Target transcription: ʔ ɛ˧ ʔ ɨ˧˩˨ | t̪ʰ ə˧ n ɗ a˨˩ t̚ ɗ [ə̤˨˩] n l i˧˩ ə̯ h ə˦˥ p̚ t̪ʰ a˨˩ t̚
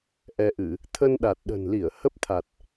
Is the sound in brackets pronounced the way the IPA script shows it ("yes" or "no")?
yes